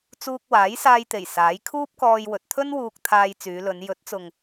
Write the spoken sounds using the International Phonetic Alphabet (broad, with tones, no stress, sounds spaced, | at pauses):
t͡s uː˧ k̚ w aː˨˥ j s aː˧ j t̪ e˨˩ j s aː˨˥ j kʰ uː˥ p̚ k ɔː˧ j w ɵ˨ t̚ t̪ʰ ɵ˥ n w uː˧ k̚ t̪ʰ aː˧ j t͡s yː˨˧ l ɵ˨˧ n j ɵ˨˥ t̚ t͡s ʊ˨ ŋ